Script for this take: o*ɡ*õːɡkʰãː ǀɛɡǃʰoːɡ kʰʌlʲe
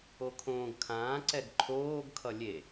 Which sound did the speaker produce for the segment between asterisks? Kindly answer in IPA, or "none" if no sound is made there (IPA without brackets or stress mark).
kʰ